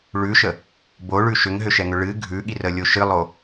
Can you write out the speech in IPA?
ɭ ʉ ʃ ə | b o ɭ ʉ ʃ ʏ ŋ ɦ ʏ ʃ ɛ ŋ ʏ ɭ ɨ ɡʱ ʉ ɠ i r ə lʲ o ʃ ɨ lˠ o

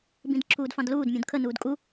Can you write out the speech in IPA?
b ĩ d ǁʰ uː d f ɑ̃ d l uː d mʲ ũ d kʰ ə n uː d kʼ u

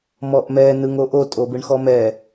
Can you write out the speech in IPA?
m ɔ ʔ m ɛ n ɯ ŋ o ʔ o tʼ o b ɯ ɳ x ɔ m ɛ

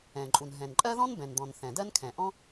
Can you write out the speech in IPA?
ɛ̃˩ ǃʼ u˩ n ɦ ɛ̃˩ n ǃʼ ɜ˥ ð ɔ̃˥ n b ɛ̃˩ n d̪ ɔ̃˩ n θ ɛ̃˩ d ɜ˥ n kʰ ɛ̃˩ ʔ ɔ̃˥

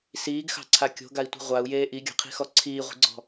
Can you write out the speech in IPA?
s iː ɡ x ɑ̤ ǀʰ a kʲ o̤ ɡ a i̯ tʷ i̤ ʁʷ a u̯ j eː ʔ i ɡʲ ɑ̤ qʰ i̤ x ɔ ǀʰ iː ʁʷ i̤ ɡ͡ǀ ɔ̤

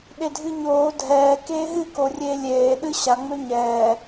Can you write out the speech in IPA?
ɗ e dʱ ɨ ɲ oː dʱ ɛː k eː ɦ ɨ k o rʲ eː lʲ eː ɗ ɨ ɕ a ŋ͡m ø ɲ ɛː

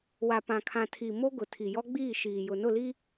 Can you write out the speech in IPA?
w a˨ p ã˨ kʰ ã˨ tʰ i˨ m o˦ ɡ ʊ˨ tʰ i˨ j ɔ˦ ɡ͡b iː˦˨ ʃ iː˨ j ʊ˨ n ʊ˦˨ l i˦

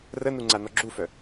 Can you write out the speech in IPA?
r ə n u ŋ͡ǀ a n ɔ ɡ͡ǁ u f œ

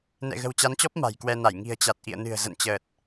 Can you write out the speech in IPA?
n ɛ̰˧˨ ɣ ə̤˨˩ w t͡ɕ a˨˦ n t͡ɕ ɔ˦˥ p̚ m a̤˨˩ j k w ɛ˧ n a˧˩ j ŋ i̤˨˩ ə̯ t͡ɕ a˨˩ t̚ ʔ ḭ˧˨ ə̯ n ɨ̤˨˩ ə̯ z ə̰˧˨ n t͡ɕ əː˨˩ t̚

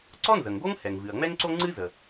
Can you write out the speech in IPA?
ǀ ɔ˥ n z ə˩ ŋ ɡ o˥ ŋ h ɛ˩ ŋ v ɨ˩ ɐ̯ ŋ͡m ɛ˥ ŋ ǀ o˥ ŋ͡ǀ ɨ˥ z ə˩

